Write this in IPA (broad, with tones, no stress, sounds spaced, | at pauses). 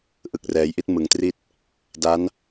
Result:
ʔ ɯ˨˩ k̚ r ɛː˩˦ j ʔ i˦˥ t̚ m ɯ˨˩ ŋ t r i˥˩ t̚ | d a˦˥ n